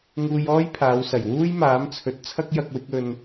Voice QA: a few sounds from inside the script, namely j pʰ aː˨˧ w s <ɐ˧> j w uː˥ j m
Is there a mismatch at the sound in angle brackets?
yes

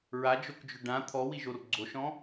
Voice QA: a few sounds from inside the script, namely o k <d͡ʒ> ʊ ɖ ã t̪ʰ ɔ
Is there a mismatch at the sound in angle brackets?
no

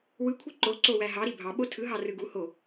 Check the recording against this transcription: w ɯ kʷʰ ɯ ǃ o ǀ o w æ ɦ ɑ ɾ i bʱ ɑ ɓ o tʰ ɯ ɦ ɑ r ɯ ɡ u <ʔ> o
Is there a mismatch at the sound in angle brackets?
yes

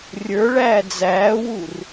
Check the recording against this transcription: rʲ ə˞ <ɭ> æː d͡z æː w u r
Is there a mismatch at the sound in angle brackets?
no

